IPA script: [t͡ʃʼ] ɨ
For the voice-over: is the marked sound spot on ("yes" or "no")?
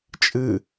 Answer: yes